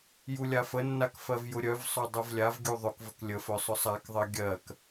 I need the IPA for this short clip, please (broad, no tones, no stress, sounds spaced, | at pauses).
j u lʲ a f ə nː a k f ɜ v j ʊ ɾʲ œ v sˤ œ dˤ u v lʲ a v ɡʲ u ðˤ ʊ k v ə k lʲ ə f œ sˤ ʊ sˤ a k ðˤ ɜ ɡʲ ɜ k